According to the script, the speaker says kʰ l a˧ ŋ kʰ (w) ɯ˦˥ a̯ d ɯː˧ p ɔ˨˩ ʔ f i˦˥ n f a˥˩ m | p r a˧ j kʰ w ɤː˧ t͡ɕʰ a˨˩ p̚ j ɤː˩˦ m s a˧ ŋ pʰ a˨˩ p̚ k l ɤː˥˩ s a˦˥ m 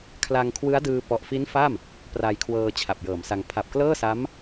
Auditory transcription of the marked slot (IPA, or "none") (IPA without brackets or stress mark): w